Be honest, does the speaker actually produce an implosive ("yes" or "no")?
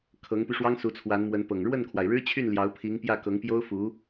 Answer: no